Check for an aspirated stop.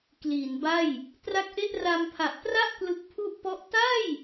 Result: present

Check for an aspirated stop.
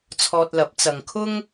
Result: present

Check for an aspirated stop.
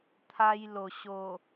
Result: present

